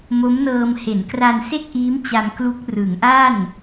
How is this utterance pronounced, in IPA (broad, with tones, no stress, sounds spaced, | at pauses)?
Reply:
m o˦˥ m n ɤː˧ m h e˩˦ n k r a˧ n s e˥˩ k̚ ʔ iː˦˥ m t͡ɕ a˧ m k l u˦˥ k̚ r ɯ˩˦ ŋ ʔ a˥˩ n